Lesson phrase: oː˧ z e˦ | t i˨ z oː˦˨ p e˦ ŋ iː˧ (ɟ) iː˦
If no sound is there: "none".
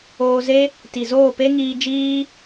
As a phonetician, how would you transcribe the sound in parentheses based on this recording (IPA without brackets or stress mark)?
d͡ʒ